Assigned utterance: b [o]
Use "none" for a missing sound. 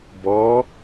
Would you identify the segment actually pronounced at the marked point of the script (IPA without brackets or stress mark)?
ɔ